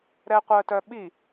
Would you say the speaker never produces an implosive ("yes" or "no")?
no